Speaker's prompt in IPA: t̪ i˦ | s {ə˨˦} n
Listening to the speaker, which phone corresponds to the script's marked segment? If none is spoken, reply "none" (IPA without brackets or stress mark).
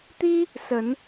ə˨˦